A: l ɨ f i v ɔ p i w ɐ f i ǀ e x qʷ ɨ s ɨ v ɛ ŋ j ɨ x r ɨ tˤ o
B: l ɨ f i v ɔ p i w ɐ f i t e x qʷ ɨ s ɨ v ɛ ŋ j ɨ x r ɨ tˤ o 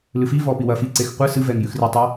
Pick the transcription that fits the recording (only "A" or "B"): A